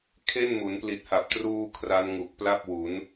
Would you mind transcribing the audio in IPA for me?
kʰe˥˩nmu˩˦n pli˨˩t̚ha˨˩p̚truː˧ kʰra˦˥nŋu˨˩k̚pla˥˩p̚wu˩˦n

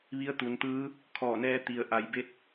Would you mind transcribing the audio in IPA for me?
ʋi˧˥ə̯ t̪u˩˧nt̪ɯː˧˥ | kʰɔː˧˩nɛː˧ t̪i˩ə̯ ʔa˩˧jbe˧t̚

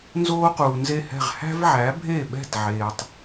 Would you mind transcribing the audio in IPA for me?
nzoː˥quː˩nze˥˩hɛ̤˥˩ʁ hæ̤˥vʕæ˩˥bʱe˥˩ɓɛ̤˥˩t ʕeː˩tˤ

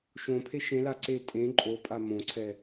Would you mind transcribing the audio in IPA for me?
ʃõpʰe ʃẽla ǀe tʼẽ ǃʼopʼa mõǀʰɛ

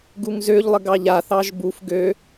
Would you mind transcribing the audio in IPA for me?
ɡuŋzøʎlˠə ɡɑʎaθɑʒ buf ɡø

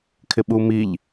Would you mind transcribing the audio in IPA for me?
kʰɪɓumiʎ

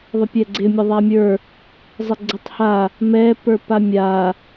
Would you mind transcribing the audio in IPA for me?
ðˤəpʲɛɡ͡ǀɪ mʲəðˤamʲə˞ | zˤɪɡ͡ǀətˤha | mɛ pə˞pamʲa

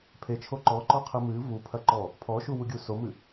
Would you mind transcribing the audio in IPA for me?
pʰet͡ʃʰo ǃɔǃɔqʰɨ mɨ vupʰɐǃɔ | pʰɔʃuwuɡʲu somɨ

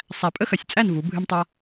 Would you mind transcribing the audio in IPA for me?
sˤæ˨˩pʼə˥xɐ˨˩sʲt͡sʼæ˥˨n vu˩˧bʱɨ˧mtˤa˧

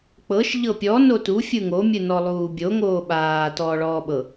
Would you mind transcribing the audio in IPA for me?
k͡pɤʃ ʎɤpʲɔ notu fʲɯŋo mʲɯnɔlˠuːbʲo ŋoːɓaː tɔːɭɔːɓɤ

